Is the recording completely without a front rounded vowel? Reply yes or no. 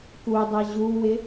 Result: yes